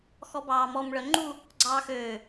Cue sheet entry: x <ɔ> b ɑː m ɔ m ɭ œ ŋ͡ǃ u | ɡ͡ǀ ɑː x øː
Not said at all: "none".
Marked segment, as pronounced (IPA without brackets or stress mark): ɔ